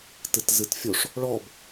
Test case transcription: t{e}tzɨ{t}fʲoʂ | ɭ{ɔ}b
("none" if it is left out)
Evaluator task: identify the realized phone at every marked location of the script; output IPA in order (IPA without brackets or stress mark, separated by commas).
ɨ, t, ɔ